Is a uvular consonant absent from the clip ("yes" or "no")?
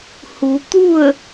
yes